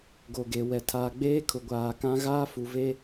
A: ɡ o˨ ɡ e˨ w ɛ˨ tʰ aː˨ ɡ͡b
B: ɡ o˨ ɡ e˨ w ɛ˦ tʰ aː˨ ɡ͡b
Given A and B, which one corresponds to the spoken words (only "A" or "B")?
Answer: A